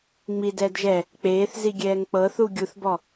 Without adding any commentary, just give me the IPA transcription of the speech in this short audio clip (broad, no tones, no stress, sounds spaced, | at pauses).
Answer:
ŋ͡m i d ɛː d ʒ ɛ | k͡p eː θ z i ɡʲ ɛː ŋ k͡p ɤ θ u ɡʲ u θ b ɔ